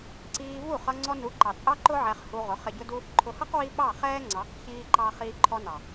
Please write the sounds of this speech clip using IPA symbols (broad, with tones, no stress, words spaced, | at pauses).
ǀiː˧vu˦˨ χʌ˧ŋ͡ǀɔ˧nu˨˦ ǃɑ˨t͡sʼɑ˦ǃʊ˦ ʕɛ˧χhu˧ ʁʊ˨˦χɪ˧ɟʊ˦du˦ | ǃʰʊ˨hʌ˦qwi˧ ɓɑ˦˨χɛː˦ŋ͡ǀɑ˨˦q çiː˦ǃɑ˦ χiː˧ǃʰɔ˧nɑ˨